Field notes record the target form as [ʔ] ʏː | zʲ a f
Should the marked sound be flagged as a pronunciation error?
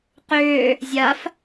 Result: yes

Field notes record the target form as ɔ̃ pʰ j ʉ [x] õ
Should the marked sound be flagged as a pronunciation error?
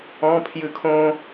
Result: yes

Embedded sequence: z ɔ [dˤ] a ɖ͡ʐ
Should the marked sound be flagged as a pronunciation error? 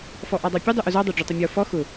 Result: no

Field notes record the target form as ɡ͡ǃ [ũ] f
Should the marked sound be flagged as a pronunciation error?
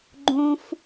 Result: no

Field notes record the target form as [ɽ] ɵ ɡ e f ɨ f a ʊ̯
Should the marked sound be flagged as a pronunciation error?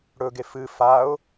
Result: no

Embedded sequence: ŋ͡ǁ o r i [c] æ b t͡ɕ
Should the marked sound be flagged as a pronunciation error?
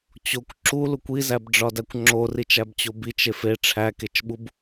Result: yes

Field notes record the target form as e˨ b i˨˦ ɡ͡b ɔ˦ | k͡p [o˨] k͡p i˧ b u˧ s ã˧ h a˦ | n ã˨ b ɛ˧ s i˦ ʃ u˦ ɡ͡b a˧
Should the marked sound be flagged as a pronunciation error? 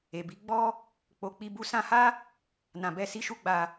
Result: no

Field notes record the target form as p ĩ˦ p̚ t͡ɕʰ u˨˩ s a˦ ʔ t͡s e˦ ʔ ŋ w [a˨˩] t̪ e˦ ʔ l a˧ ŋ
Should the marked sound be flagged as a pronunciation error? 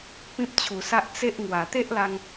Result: no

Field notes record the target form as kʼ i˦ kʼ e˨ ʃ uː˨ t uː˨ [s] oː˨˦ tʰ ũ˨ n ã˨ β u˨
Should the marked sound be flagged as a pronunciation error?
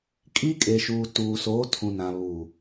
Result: no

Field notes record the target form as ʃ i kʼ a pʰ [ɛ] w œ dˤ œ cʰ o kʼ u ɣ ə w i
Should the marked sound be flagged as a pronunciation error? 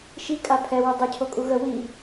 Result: no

